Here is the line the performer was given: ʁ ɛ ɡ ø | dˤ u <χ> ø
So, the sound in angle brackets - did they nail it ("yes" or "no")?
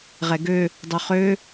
yes